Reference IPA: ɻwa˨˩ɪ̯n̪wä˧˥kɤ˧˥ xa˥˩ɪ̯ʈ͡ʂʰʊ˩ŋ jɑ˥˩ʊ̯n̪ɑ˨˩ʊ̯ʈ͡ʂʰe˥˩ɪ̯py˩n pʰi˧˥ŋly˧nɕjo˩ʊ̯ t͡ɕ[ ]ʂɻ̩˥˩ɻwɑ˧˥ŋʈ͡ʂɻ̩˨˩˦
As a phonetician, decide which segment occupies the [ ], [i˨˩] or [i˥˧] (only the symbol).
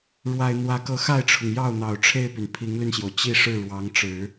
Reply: i˥˧